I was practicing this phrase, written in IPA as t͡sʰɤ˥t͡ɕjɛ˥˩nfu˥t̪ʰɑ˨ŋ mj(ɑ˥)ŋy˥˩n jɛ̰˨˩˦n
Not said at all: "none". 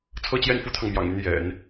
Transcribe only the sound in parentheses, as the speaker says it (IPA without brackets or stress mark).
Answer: ɑ̰˨˩